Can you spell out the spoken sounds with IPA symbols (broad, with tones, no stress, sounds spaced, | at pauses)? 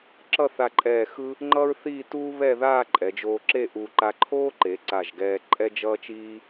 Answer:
ǁ ʌ˥˧ θ a˧ ǃʼ ɛː˧˩ x ɯ˥ | ŋ͡ǃ ʌː˥ ɹ θ iː˥˧ t uː˥ β ɛ˥˧ ð aː˥˧ ǃʼ ɛ˩˧ d͡ʒ oː˧ ǁ e˥˧ ʔ u˧ ǃ a˧ ǃʰ oː˥ ǃ e˩˧ ǀ a˧˩ ʒ ɡ ɛː˧ ǃʼ ɛ˥ d͡ʒ ʌː˥ t͡ʃ iː˥